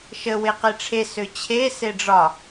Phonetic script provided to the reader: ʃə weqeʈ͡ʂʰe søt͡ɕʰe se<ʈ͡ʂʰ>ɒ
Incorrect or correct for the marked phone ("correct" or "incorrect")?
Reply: incorrect